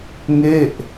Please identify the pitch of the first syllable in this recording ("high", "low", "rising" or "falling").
falling